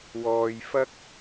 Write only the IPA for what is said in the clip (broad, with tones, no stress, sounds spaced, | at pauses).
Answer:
w ɔː˨ j f ɐ˥ k̚